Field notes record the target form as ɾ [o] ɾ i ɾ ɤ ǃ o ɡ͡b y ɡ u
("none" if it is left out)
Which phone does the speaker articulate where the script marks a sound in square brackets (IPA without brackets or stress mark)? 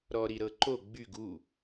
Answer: ɔ